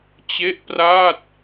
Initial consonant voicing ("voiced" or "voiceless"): voiceless